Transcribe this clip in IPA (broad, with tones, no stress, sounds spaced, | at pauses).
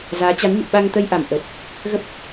z aː˨˦ t͡ɕ a˨˦ n ɲ ṵ˧˨ ɓ a˧ ŋ t̪ ə˧ j ʔ a˧˩ m ʔ ə˨˩ t̚ | ɣ ə˦˥ p̚